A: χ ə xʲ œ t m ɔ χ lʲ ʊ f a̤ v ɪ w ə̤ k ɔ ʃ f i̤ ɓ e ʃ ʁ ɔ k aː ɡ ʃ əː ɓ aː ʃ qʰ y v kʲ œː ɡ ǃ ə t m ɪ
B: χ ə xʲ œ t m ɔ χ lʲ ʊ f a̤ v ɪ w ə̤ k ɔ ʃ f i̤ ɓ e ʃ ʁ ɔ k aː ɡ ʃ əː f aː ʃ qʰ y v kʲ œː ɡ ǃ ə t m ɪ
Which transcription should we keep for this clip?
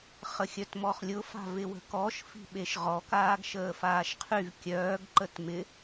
B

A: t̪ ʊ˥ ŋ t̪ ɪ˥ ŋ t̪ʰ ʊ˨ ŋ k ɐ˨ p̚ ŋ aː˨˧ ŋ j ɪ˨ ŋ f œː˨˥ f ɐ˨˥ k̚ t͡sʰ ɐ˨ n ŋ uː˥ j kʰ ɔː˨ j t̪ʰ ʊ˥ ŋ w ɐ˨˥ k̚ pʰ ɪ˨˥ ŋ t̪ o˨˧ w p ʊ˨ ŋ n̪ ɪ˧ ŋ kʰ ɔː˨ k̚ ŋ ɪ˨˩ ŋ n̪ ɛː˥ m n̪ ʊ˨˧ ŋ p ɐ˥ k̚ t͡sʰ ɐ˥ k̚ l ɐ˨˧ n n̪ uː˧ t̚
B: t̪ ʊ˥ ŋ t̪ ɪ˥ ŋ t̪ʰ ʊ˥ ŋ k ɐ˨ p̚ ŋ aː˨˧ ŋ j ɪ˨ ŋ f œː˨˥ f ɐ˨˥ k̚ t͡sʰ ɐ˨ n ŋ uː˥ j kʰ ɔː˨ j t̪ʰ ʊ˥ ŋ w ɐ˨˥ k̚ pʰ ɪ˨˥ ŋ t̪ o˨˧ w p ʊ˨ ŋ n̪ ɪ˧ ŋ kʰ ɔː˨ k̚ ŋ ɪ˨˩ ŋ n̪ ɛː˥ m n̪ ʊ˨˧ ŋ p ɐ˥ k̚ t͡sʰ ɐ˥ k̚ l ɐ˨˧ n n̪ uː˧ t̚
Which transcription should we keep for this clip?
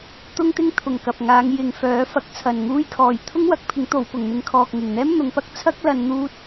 A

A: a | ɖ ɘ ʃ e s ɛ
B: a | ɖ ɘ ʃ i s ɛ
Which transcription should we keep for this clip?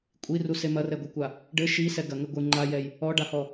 B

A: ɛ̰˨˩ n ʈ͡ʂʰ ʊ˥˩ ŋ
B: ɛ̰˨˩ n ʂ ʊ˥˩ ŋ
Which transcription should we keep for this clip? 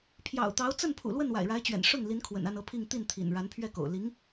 B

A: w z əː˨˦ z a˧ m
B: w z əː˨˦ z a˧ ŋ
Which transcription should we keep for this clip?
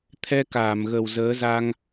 B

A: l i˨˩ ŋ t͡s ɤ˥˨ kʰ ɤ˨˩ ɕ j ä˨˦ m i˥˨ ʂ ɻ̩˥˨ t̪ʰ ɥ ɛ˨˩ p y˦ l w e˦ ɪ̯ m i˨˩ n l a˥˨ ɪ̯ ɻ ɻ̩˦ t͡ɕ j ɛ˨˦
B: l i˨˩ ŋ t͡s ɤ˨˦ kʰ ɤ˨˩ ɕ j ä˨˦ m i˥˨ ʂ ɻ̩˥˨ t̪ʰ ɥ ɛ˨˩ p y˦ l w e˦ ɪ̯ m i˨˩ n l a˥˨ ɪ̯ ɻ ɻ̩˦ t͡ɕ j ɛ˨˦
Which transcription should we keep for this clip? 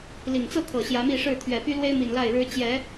A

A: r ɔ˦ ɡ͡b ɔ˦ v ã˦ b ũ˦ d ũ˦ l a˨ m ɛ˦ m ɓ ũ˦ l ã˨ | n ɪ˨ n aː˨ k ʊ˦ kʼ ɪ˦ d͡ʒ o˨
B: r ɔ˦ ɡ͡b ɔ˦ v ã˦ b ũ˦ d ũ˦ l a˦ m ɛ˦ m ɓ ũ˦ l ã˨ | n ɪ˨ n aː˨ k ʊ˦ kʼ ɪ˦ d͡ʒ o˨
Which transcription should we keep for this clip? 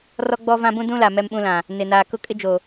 A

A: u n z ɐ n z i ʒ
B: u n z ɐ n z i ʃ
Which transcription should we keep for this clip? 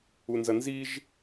A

